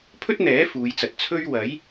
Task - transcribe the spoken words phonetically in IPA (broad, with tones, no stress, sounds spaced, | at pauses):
pʰ ɵ˥ t̚ n̪ ɛː˨˥ f uː˨˧ j t͡s ɐ˨ t̚ t͡sʰ ɵ˥ ɥ w ɐ˨˥ j